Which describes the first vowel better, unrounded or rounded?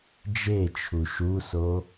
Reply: unrounded